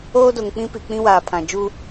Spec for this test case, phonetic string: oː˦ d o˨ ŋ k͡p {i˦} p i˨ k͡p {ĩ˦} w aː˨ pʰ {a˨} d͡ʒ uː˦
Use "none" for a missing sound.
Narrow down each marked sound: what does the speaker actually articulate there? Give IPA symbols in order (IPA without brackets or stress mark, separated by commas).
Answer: ĩ˦, ĩ˦, ã˨